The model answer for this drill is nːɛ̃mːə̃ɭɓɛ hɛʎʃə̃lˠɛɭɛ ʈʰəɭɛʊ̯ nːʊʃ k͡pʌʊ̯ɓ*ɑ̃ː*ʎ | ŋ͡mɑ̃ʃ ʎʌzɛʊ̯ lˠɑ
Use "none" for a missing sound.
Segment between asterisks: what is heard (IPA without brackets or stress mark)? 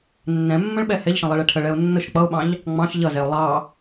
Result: ɑ̃